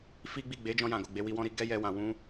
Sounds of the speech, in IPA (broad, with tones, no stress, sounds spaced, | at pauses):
f i˦ ɡ͡b i˦˨ ɡ͡b e˨˦ d͡ʒ ɔ̃˧ j ã˨ ɡ o˨ ɡ͡b e˨˦ w i˧ w ɔ̃˦ ɾ i˧ ɡ ɛ˦ j ɛ˧ w ã˨ w ũ˧